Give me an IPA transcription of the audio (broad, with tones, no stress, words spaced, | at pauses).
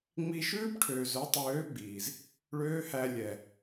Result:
ŋ͡mi˧ʃʉː˦bʈʰøː˨zœ˨˦ tˤøː˨˦ ɡ͡biː˨z | ɭøː˦hæ˧lʲɛ˨